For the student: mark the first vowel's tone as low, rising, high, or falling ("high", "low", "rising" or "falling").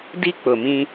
high